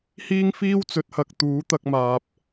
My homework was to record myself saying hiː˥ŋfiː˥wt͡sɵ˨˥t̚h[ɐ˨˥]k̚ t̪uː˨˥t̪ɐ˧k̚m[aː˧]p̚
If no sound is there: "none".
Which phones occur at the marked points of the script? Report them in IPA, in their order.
ɐ˨, aː˨

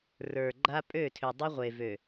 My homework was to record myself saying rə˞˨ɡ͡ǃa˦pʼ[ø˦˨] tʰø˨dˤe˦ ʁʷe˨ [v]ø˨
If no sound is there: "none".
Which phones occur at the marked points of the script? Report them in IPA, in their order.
ø˦˨, v

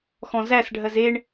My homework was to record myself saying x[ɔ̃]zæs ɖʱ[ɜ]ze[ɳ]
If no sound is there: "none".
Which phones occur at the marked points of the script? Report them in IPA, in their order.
ɔ̃, ɜ, ɳ

